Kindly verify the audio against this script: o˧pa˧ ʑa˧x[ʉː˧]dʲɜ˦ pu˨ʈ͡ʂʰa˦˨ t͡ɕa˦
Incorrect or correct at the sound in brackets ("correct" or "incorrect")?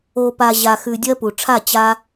incorrect